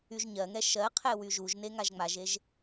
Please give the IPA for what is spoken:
y ʒ ɲ ɜ ŋ ɛ ʃ ɜ qʰ ɛ w y ʒ u ʒ n e ŋ a ʒ ŋ͡m a ʒ e ʒ

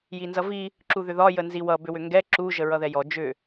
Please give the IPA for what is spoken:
j i n z ʌ v i | ǁ u ð ʏ ð ɒ j ə n z i w ʌ b ʏ w ʏ ŋ ɡ ɛ ǁ u ʒ ə ɹ ʌ ð ɛ j ɔ d͡ʒ ʏ

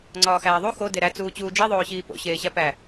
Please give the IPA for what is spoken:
ŋ͡ǀ ɒː x æː ðˤ u x o d e ɾ æ t͡s uː t͡ɕ uː d͡ʒ i ðˤ oː ɕ iː p o̰ ɕ eː ɕ æ p æ

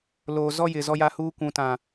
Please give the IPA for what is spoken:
l oː˨ z ɔ˦ j ɪ˨ z ɔ˦ j a˦ h uː˦ kʷ ũ˨ t ã˨

